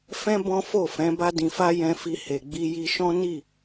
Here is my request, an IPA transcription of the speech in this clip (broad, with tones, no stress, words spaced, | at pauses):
fɛ̃˦ bɔ̃˦fo˦˨fɛ̃˨˦ ba˧dĩ˨fa˧ jɛ̃˧fi˧ he˨ɡ͡bi˧ ji˧ʃɔ̃˦ ni˦˨